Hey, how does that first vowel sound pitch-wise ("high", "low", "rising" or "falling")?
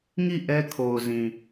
falling